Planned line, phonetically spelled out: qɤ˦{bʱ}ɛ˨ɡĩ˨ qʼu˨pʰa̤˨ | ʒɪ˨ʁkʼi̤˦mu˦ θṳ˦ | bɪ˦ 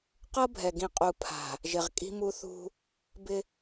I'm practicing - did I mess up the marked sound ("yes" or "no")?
no